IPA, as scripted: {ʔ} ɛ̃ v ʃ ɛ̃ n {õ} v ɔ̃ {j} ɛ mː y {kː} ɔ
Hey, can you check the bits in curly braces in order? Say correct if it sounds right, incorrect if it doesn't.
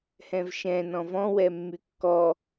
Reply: incorrect, incorrect, incorrect, correct

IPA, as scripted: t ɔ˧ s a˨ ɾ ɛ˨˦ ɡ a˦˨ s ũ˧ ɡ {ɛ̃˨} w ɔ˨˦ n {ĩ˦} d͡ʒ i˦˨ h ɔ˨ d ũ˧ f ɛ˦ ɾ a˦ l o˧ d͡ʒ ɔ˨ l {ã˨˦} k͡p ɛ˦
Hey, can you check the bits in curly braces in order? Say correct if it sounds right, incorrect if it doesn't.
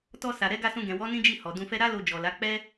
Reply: correct, correct, incorrect

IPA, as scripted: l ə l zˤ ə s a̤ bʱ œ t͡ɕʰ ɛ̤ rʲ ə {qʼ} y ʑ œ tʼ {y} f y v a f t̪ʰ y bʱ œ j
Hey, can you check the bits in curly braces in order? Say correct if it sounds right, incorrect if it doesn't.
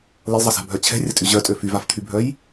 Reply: incorrect, incorrect

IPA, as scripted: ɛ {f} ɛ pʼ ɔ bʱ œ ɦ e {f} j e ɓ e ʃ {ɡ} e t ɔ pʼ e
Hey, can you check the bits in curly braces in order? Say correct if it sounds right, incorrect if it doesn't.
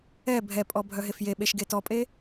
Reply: incorrect, correct, correct

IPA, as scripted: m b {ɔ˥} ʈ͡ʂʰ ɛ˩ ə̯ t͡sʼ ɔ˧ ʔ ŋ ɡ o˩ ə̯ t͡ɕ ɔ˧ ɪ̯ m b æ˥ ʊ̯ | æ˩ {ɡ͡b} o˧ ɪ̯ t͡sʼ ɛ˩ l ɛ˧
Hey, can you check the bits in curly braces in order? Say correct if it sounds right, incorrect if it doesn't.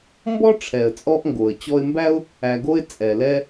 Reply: correct, incorrect

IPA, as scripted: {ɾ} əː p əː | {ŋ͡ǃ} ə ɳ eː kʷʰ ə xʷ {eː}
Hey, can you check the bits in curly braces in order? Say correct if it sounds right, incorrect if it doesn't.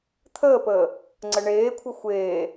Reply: incorrect, incorrect, correct

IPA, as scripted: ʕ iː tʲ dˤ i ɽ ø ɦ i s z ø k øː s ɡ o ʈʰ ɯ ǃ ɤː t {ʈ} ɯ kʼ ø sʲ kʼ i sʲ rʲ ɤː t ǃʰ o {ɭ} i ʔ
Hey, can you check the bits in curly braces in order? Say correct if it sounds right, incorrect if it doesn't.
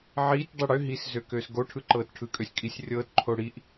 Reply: incorrect, incorrect

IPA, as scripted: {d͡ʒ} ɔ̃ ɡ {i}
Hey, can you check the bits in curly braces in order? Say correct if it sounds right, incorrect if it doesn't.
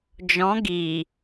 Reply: correct, correct

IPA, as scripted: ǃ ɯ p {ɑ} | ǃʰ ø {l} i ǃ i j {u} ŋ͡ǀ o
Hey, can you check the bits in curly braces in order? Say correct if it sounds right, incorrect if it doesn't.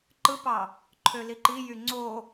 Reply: correct, correct, incorrect

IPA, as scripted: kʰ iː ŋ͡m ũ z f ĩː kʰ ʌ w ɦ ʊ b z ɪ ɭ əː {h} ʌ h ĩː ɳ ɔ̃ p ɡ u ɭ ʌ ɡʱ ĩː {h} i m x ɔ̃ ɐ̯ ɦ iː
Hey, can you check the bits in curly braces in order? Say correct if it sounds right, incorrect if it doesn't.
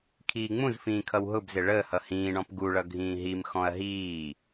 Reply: correct, incorrect

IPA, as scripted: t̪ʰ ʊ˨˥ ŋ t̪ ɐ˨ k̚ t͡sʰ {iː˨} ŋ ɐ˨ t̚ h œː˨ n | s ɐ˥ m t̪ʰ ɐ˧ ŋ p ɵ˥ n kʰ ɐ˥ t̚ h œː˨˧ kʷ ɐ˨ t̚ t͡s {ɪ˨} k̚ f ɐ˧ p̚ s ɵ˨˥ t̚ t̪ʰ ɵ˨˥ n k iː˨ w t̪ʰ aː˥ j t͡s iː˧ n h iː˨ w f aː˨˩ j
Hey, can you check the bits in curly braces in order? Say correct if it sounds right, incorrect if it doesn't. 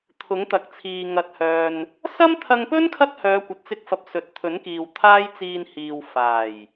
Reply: correct, incorrect

